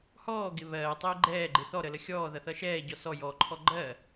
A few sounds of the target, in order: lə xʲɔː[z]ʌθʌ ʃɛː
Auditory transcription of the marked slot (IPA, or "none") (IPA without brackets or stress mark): ð